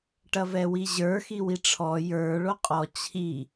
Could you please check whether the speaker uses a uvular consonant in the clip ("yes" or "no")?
yes